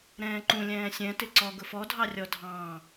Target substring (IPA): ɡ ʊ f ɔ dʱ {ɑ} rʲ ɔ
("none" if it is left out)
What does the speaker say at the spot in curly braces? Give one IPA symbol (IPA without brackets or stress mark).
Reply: ɑ